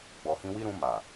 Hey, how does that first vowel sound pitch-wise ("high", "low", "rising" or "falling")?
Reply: low